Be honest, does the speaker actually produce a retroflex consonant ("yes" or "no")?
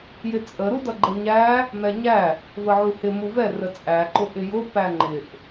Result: no